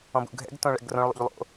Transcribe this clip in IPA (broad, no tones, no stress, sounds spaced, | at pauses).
ɔ̃ b ṵ ɡʱ ɛ̰ ɡ t õ ɭ ɛ̰ ɡ r õ ɭ lˠ ṵ ʎ lˠ o̰